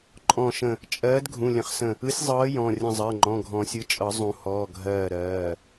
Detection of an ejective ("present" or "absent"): present